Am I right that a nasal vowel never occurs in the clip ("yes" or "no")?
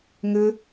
yes